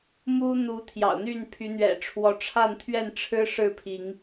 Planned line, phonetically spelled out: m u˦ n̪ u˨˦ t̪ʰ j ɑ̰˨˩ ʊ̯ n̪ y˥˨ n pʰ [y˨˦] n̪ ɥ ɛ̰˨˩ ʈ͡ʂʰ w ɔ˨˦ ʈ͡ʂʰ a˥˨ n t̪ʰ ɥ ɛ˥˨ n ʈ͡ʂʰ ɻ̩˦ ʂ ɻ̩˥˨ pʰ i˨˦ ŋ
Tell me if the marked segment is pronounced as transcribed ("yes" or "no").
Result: yes